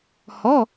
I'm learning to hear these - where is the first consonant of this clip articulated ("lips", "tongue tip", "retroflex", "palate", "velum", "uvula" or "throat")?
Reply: throat